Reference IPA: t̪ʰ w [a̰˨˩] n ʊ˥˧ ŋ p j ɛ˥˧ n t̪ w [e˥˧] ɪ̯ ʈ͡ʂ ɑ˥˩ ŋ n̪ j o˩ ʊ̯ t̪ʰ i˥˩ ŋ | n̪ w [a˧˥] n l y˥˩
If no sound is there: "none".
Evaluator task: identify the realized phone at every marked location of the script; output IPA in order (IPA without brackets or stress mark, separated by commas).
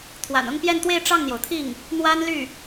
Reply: a̰˨˩, e˥˧, a˥